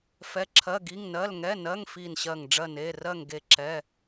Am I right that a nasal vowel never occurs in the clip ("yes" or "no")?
yes